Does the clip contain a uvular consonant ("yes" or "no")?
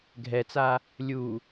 no